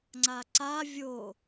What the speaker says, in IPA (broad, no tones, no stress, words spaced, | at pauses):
ŋ͡ǀaǀa vʲo